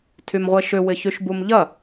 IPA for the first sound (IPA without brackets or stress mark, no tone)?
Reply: tʰ